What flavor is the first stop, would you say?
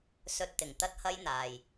plain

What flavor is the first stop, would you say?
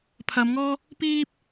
aspirated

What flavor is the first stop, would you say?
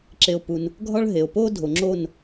click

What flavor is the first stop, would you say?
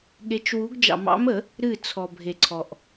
implosive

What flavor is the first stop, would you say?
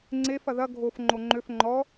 click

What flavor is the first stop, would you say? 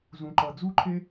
click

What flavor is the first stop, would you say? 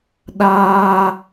implosive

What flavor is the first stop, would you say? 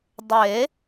plain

